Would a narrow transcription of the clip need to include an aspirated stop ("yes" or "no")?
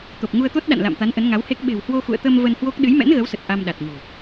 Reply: no